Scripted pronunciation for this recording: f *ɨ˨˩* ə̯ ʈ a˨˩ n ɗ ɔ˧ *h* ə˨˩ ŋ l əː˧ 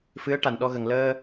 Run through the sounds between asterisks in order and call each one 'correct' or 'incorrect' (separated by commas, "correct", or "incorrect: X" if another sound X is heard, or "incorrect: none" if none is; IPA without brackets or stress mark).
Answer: incorrect: ɨ˧˥, incorrect: ɣ